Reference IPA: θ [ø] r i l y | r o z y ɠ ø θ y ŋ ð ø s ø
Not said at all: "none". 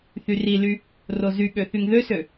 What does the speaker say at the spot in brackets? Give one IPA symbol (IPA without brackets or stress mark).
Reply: y